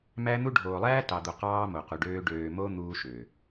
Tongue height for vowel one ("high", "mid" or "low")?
low